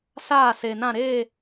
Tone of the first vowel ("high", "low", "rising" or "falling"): falling